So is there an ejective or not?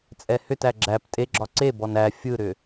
yes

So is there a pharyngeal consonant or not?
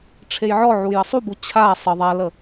yes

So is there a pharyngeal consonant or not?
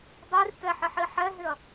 yes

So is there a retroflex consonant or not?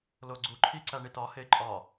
yes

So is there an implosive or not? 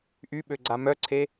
yes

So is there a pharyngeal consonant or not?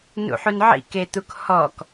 yes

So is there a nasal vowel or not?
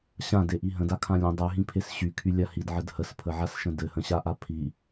yes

